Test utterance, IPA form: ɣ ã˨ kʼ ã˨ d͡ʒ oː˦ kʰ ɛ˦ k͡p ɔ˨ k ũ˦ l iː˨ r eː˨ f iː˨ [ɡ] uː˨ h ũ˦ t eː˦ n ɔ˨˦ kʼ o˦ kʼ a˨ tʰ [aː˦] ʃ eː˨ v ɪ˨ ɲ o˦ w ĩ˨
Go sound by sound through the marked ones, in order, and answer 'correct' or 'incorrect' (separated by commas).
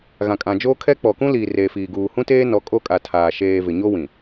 correct, incorrect